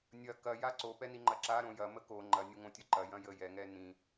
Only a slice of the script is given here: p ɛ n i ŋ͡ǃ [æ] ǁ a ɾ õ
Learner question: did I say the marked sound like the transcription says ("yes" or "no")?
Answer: no